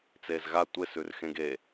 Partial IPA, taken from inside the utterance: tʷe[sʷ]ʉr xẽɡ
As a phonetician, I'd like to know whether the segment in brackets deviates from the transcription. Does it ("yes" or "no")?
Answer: yes